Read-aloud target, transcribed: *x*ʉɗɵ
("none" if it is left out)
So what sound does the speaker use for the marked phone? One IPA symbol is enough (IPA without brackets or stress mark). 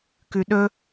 k